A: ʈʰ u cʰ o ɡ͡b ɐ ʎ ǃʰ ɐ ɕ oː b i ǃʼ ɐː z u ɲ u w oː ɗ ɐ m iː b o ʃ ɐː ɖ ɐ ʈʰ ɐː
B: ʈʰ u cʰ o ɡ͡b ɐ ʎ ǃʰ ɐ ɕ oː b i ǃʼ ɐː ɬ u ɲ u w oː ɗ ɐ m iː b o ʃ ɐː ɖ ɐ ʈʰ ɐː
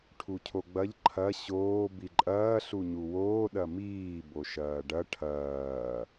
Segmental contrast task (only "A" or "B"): B